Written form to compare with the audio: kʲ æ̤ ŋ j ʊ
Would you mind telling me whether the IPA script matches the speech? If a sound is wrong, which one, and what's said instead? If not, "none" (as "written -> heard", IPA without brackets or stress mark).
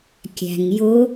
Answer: none